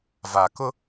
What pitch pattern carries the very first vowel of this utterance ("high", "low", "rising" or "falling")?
low